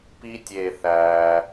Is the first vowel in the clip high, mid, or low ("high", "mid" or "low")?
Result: high